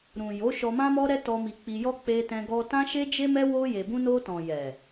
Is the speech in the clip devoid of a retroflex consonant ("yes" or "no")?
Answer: yes